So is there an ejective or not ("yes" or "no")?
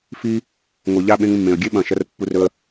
no